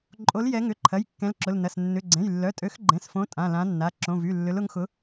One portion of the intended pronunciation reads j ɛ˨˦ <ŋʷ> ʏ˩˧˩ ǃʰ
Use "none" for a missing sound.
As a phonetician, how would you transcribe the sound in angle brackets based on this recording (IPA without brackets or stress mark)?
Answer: ŋ